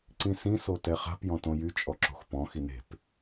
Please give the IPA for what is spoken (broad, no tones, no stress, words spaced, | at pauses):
ǀĩsĩ sotɛχa̤p jɔ̃tõjy t͡ʃʼɔǁo̤xpɔ̃ xine̤p